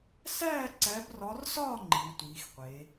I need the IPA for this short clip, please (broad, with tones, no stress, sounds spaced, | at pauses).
s æː˥˨ ǀ æ˨˦ b r ɒ˨˦ r s ɒː˥˨ ŋ͡ǃ i˨˦ w tʷ iː˨˦ x qʷ e˨˦